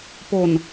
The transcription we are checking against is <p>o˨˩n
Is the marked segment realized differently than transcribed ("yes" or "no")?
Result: no